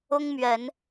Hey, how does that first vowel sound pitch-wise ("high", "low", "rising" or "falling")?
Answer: high